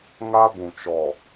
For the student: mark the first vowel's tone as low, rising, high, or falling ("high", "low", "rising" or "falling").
high